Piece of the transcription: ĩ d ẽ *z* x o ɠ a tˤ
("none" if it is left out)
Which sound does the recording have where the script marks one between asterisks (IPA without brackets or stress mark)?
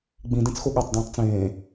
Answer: t͡s